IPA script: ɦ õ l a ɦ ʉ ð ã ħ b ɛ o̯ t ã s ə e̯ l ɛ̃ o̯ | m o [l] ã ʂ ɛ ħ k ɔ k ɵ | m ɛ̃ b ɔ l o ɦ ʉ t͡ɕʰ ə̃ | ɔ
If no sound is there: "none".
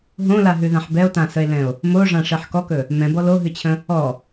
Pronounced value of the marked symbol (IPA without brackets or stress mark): ʐ